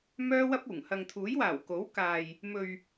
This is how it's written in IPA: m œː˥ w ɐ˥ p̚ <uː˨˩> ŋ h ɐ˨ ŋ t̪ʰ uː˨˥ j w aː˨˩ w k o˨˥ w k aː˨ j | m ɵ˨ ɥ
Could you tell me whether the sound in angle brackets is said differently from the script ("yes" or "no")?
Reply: no